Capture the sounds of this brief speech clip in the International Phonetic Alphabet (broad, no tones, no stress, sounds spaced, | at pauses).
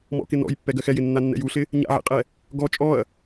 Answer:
m ɔ̰ k ɪ n ɔ̰ j pː ɛ ɡ ɜ x ɛ j ɪ nː a nː ɛ̰ j u ɬ ɪ | ɲ a̰ ʕ ḛ qʼ ɛ | ɡ ɔ t͡ʃʼ ɔ ɐ̯